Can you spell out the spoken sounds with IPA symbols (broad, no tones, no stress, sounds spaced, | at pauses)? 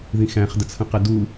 ð ĩ x æ̃ χ d ə t͡sʰ ə̃ q ɛ d u